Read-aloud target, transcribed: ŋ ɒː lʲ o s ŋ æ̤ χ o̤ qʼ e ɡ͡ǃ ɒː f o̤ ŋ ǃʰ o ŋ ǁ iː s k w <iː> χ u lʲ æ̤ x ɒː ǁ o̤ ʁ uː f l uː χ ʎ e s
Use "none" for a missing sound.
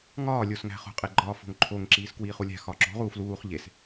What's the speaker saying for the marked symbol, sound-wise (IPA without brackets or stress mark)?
iː